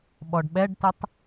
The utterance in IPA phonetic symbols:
ɓ ɔ ɖ ɓ ɛ ɖ t ə tˤ

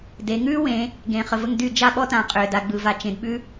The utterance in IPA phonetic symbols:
d e˩˧ ŋ ʉː˥ w ẽ˩˧ | ɡ ẽ˩˧ χ ə˩ v ə˥˨ ŋ d y˥˨ d͡ʒ a˥˨ ɓ ɔ˥ t ã˩˧ qʼ ʏː˩ d a˩˧ ɡ͡b ɯ˩˧ v a˩˧ t͡ʃ ẽ˩˧ d ɓ ʉ˥

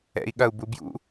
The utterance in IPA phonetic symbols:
ɛ̰ i̯ ɠ ɐ u̯ b u b j ṵ

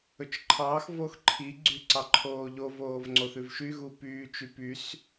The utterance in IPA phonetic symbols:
ɵ t͡ʃ ǃʰ ɑː x v o x ǃʰ i ɡ͡ǀ y ǀ ɑ ǃʰ oː ʎ o v oː v ŋ͡ǀ o θ ʉ v ʃ y ɣ u p yː t͡ʃ y p y s

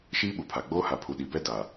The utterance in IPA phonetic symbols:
ʃ iː˦ ɓ u˨ pʰ a˨ ɡ͡b oː˦ h a˨ pʰ u˨ ɗ i˨ b ɛ˦ d a˨

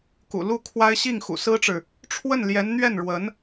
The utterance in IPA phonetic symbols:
k ṵ˨˩ l u˥˩ kʰ w a˥ ɪ̯ ɕ i˥˩ ŋ x ṵ˨˩ s ɹ̩˥ ʈ͡ʂ ɻ̩˨ | ʈ͡ʂʰ w ə˥˩ n l j ɛ˧˥ n n̪ ɥ ɛ˥˩ n ɻ w ə˧˥ n

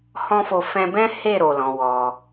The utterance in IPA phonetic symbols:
h ɔ̃˦ f o˧ f ɛ̃˧ b ɛ̃˦ h e˦˨ ɾ o˨ l ɔ̃˨˦ w ɔ˧

